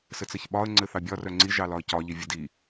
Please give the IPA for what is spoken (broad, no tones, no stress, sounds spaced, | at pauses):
s ɘ t͡s ɘ ç ɓ ɒ ə̯ ŋ͡ǀ ɘ θ ɑ bʲ ɒ r œ ŋ͡ǀ i ʒ ɑ l ɒ ə̯ c ɒ ʎ i vʲ ɘ d i